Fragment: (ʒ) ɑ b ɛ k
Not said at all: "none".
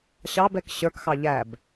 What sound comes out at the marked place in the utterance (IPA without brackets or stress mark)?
ɕ